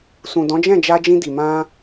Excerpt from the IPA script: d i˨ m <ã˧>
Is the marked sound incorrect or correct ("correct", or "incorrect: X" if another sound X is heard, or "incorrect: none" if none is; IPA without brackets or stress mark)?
correct